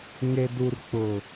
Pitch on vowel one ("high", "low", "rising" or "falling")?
low